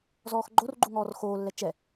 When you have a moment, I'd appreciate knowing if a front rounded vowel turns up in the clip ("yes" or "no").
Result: no